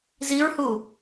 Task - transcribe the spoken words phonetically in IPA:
z i ɹ h u

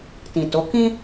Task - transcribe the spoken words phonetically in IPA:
t ĩ˨ t o˨˦ k ĩ˦

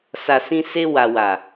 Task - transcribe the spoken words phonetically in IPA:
s a˨ s ĩ˧ s e˧ w a˨ w a˨

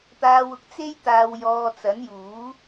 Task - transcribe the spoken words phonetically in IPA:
t̪ aː˧ w ʊ˨ k̚ t͡s e˥ j t̪ aː˧ w j ɔː˧ t͡s ɐ˨˥ n j uː˨˥

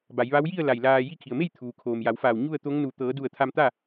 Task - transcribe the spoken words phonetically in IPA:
b a˩˧ j ʋ a˧˥ w j i˥˨ ə̯ l a˧˩ j l aː˧ j i˧ kʰ i˩ ə̯ m e˥˨ j t̪ʰ uː˩ kʰ oː˩ m j a˩˧ w f aː˧˩ w ɲ u˥˨ ə̯ t̪ o˧˥ ŋ n u˧˩ t̪ ɤː˩˧ d u˧˩ ə̯ t̪ʰ a˧ m t̪ a˥˨

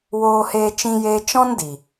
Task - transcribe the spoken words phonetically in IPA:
w oː˧ h eː˧ t͡ʃ ĩ˦ j eː˦ t͡ʃ ɔ̃˦ n d i˨

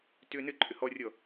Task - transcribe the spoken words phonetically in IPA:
t ʏː n ɘ ǃʼ ʏ h ɔ rʲ ɔ

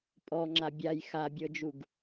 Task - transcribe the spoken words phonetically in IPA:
pʼ ɔ ŋ͡ǁ a bʲ a j x a bʲ ɤ d͡ʒ u ɡ

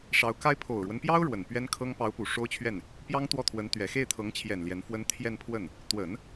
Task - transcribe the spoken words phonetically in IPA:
ʂ ɑ˧˥ ʊ̯ k a˥ ɪ̯ pʰ o˨˩ ʊ̯ ɻ w ə˦ n p j ɑ˥ ʊ̯ ɻ w ə˨˩ n p ɥ ɛ˥ n kʰ ɤ˥ ŋ p ɑ˧˥ ʊ̯ p u˨˩ ʂ o˥ ʊ̯ t͡ɕʰ ɥ ɛ˥˩ n | p j ɑ˥ ŋ t̪ w ɔ˥˩ t̪ʰ w ə˧˥ n t̪ ɥ ɛ˨˩ x e˥˩ ɪ̯ t̪ʰ ɤ˧˥ ŋ t͡ɕʰ j ɛ˨˩ n l j ɛ˧˥ n f w ə˥ n t̪ʰ j ɛ˥˧ n pʰ w ə˥˩ n | t̪ w ə˨˩˦ n

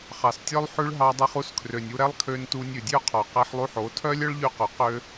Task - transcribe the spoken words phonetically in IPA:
χ ɑ˨ s tʲ œ˧ lˠ ħ ʉ˧ ɭ ɦ ɑ˧ dˤ ɛ˧ χ u˧ s kʰ r ø˨ nʲ u˧ ɾ ɛ˦ lˠ kʰ ø˧ n t u˧ nʲ ʉ˨ dʲ ø˦ qʰ ɔ˨ q ɛ˧ ħ lˠ u˧ ħ o˨˦ tʰ œ˦ lʲ œ˦ ɭ ʎ y˧ q ɵ˨ q ø˦

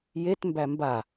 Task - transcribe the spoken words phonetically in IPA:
j e t m b æ m b a

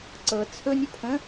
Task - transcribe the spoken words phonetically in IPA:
ǀ ɤ t͡sʰ ɵ nʲ ɵ pʰ ə̃

